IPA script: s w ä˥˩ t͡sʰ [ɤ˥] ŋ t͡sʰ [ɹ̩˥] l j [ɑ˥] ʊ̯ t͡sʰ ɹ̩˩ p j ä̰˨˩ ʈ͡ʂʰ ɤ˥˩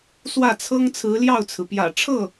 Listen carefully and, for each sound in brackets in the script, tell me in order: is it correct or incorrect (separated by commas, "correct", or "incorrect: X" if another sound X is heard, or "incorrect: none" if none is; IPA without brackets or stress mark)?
correct, incorrect: ɹ̩˧˥, incorrect: ɑ˥˩